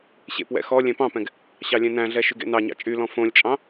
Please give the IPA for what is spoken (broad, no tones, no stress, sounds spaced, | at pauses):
ɕ ḛ p w ɛ̰ x ɔ lʲ ɛ̃ p ɑ̃ p ɛ̃ ɡ | ɕ ɑ lʲ ɛ̃ n æ̃ ɮ ɛ ʃ y ɡ ḛ n ɑ ɲ ɑ̰ t͡ʃʼ y l ɔ̃ f õ lʲ t͡ʃʼ ɑ̃